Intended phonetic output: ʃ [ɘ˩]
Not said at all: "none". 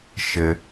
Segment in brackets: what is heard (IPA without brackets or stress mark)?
ɘ˩